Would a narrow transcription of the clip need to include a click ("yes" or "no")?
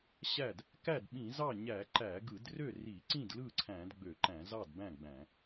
yes